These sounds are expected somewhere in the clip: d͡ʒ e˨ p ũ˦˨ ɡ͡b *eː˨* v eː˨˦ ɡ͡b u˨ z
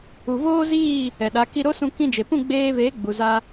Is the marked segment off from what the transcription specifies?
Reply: yes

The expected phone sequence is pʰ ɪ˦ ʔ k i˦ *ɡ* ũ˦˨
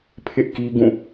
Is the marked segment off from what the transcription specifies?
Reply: no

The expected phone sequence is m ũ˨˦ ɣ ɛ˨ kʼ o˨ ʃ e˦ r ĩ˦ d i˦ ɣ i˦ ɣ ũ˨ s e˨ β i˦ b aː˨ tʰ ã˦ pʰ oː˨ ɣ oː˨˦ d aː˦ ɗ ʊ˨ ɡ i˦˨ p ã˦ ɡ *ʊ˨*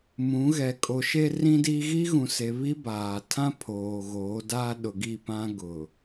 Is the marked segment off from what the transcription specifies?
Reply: no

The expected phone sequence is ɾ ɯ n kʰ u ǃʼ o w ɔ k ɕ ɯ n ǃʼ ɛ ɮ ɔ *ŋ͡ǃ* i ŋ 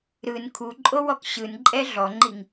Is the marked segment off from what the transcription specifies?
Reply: no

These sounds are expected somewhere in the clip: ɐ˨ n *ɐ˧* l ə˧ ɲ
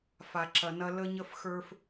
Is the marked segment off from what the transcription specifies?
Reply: no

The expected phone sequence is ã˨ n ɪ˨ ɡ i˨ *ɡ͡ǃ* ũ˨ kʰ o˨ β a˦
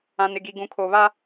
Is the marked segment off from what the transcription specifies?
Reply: yes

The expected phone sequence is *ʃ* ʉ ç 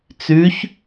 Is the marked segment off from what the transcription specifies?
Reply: yes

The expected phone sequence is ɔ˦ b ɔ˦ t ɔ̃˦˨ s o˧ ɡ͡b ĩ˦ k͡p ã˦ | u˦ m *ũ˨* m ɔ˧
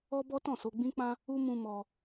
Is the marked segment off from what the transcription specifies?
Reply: yes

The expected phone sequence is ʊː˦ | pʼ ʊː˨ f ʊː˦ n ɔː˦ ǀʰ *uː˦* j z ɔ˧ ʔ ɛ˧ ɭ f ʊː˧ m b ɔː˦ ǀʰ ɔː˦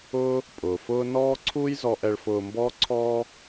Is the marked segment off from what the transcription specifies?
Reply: no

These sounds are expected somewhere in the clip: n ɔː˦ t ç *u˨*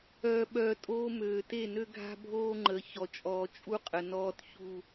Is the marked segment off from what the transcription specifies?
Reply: yes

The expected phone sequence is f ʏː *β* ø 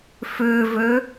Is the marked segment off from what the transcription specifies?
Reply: yes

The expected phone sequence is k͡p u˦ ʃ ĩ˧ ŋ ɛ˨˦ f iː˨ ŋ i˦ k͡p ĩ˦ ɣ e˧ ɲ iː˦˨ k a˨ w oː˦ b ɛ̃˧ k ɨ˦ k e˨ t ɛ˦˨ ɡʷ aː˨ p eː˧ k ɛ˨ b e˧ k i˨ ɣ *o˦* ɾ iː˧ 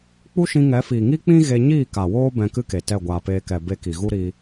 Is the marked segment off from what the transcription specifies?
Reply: yes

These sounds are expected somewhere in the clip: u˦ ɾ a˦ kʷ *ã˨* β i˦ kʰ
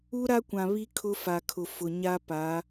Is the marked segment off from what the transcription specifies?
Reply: no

